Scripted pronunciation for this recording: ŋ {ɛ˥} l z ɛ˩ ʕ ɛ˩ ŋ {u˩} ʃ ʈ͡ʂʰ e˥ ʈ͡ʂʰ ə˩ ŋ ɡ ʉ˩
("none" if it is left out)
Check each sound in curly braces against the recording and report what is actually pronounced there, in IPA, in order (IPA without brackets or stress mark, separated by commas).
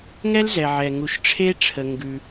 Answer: ɛ˥, u˩